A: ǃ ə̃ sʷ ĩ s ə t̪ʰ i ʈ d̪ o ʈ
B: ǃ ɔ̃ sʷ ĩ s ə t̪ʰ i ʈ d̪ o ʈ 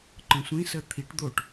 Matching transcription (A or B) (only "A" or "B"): A